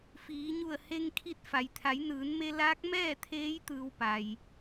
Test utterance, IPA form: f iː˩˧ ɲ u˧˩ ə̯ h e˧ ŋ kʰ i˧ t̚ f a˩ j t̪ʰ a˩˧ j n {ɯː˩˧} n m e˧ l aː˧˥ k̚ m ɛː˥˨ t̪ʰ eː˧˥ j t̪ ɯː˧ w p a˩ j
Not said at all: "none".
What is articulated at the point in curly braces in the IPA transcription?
ɯː˩˧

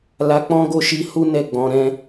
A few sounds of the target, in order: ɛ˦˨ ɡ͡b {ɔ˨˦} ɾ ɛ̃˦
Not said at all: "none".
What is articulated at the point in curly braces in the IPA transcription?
ɔ̃˨˦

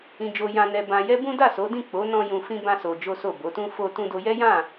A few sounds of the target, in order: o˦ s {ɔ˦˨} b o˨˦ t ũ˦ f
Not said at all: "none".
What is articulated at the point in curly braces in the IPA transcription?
o˦˨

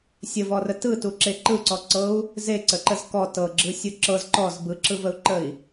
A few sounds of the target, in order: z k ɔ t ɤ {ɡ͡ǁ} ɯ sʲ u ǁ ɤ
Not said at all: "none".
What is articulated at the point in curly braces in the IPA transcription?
ɡ͡ǁ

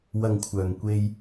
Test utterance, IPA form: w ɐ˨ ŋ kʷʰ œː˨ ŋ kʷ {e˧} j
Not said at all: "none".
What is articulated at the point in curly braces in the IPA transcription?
e˧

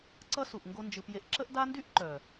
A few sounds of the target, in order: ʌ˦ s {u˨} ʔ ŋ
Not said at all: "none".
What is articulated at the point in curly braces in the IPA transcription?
u˨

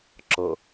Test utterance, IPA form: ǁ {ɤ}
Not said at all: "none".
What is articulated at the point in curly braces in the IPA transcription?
ɤ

